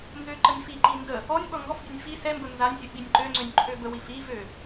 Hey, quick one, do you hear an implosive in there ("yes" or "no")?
yes